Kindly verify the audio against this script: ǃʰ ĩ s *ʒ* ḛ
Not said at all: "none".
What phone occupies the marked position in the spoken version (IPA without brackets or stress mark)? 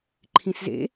z